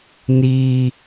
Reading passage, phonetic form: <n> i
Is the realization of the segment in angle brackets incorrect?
no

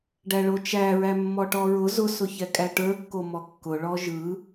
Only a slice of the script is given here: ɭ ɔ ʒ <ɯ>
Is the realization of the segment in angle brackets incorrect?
no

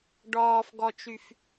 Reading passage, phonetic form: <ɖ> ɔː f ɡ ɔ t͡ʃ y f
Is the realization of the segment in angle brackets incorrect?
no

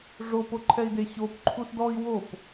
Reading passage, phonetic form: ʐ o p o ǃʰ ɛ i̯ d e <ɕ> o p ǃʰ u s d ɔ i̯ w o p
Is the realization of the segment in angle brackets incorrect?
no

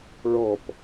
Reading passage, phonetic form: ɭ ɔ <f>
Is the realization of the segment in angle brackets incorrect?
yes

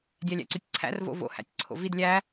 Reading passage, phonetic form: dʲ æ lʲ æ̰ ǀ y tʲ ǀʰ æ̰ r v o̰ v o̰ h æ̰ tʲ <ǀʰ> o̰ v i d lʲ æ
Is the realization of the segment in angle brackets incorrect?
no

